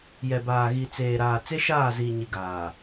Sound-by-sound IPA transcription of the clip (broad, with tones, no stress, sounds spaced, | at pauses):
j ɛ˨ b aː˨ ɣ i˨ t͡s eː˨ ɾ aː˨ t͡s e˦ ʃ aː˦˨ z iː˨ ɲ i˨ ɡ aː˨